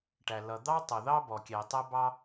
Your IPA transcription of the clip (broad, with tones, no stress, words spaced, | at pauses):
ʈæ˩lʌ˩d̪ɑ˥ tˤʌ˩ðɑ˥ bɔ˩kʲɛ˩ tˤæ˥bɑ˥